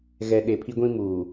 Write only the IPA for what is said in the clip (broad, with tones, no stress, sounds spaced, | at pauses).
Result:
ɣ ɛ˨ ɗ e˨ pʰ i˦ ɡʷ ĩ˦ m uː˨